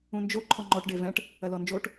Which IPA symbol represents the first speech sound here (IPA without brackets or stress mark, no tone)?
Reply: ũ